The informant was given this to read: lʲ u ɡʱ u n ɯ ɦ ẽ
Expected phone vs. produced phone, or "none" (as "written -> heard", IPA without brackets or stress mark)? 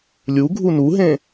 ɯ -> u